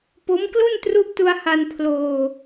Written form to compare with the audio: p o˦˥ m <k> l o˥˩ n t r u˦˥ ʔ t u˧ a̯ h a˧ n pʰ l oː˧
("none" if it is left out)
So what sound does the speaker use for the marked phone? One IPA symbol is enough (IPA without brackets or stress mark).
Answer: k